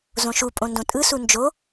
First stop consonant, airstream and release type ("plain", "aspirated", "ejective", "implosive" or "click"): ejective